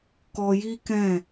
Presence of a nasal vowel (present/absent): present